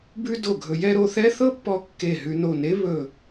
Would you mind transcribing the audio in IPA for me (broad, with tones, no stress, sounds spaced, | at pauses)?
b ʉ˥ d o˧˩ ɡʱ ɵ˧ j ɛ˥˧ ɾ o˥˧ θ ɛ˥ θ ɤ˥ pː ɔ˧ kː e˧˩ ɦ ʉ˧ n o˧˩ n e˥ β ɵ˧˩